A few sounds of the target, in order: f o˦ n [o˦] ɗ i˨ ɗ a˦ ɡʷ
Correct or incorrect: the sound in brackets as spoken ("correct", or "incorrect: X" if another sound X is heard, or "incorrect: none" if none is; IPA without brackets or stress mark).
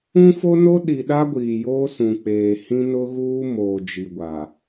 correct